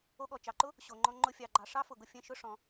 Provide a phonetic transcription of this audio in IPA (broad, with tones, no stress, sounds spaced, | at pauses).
o˧ ɠ ɔ˩ t͡ʃ ɑ˩ ǃ ʊ˥ | ɕ o˩ ŋ͡ǃ ɔ̃˧ ŋ͡ǃ ʊ˧ fʲ ɑ˩ ɡ͡ǃ ɑ˩ ʂ ɑ˥ f ʊ˩ ɡ ʊ˧ fʲ ɛ̃˧ ʃ ʊ˥ ʂ ɔ̃˩